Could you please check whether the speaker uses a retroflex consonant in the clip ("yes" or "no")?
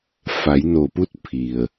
no